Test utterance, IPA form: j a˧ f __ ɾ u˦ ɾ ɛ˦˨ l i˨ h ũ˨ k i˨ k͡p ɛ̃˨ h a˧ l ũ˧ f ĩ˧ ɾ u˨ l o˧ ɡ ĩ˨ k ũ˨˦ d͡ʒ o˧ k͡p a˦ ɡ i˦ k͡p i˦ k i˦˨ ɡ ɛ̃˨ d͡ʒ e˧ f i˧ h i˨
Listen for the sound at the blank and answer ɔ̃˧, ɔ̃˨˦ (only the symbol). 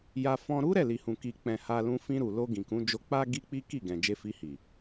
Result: ɔ̃˧